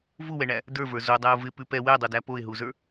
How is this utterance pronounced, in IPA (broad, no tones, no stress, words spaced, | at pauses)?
vuwɛɳæ | də˞və˞ zodˤæʊ̯ vɪpʉ pɛ wɛdˤodæ poɪ̯ɦuzə˞